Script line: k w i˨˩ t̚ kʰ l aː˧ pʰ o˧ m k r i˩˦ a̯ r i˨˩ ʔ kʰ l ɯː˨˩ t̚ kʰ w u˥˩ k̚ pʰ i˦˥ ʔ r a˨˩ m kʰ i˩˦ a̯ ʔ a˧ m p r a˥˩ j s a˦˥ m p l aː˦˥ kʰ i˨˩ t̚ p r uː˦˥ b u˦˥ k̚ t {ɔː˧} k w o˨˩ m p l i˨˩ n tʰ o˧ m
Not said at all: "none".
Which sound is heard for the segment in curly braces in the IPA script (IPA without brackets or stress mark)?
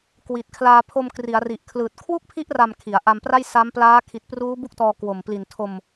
ɔː˧